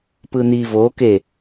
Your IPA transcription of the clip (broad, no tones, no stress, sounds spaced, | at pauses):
p ɯ n̪ i v o k e